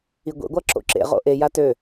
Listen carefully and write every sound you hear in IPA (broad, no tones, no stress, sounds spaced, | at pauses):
i ɡʷ ḛ ɡʷ a ǁ o̰ ǁ ḛ ʁ o̰ ʔ e j a t ø